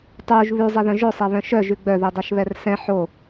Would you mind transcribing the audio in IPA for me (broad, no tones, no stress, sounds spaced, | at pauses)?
tˤ uː ʒ β ʉ zˤ ɛ ð œ̃ ʒ ɵ sˤ ɛ β œ̃ ʃ œ ʒ ʉ ɡ͡b œ ð i dˤ œ ʃ β ɛ r s ɛ̃ ħ o